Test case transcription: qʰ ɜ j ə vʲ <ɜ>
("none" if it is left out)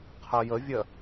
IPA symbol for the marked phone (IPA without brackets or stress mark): ɜ